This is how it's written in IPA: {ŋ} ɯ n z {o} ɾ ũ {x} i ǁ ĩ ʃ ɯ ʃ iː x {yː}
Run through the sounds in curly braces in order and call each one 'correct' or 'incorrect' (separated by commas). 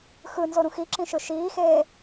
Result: incorrect, correct, correct, incorrect